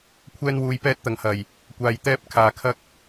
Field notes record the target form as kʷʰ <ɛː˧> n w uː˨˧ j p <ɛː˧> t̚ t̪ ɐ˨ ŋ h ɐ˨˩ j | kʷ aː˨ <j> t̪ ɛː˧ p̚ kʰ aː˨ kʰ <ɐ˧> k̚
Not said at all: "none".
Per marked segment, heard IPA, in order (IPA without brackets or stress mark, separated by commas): ɛː˧, ɛː˧, j, ɐ˧